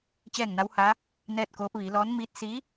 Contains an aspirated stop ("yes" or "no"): no